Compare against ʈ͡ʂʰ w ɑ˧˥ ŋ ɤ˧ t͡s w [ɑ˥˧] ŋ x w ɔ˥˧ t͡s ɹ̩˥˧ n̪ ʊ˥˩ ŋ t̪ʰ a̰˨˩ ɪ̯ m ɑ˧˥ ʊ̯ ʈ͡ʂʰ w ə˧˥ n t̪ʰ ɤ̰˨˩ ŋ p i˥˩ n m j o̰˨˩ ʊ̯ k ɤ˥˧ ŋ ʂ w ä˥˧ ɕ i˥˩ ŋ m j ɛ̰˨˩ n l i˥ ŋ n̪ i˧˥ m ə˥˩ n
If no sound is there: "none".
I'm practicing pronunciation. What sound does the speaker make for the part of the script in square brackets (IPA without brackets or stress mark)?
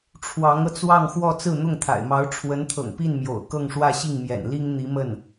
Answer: ɑ˥˧